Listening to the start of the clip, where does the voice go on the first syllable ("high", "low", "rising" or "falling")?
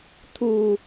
low